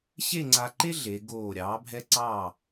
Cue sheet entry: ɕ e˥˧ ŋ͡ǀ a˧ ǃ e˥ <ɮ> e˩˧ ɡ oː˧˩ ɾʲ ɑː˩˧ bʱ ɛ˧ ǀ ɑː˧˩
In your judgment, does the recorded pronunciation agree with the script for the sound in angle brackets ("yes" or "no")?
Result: yes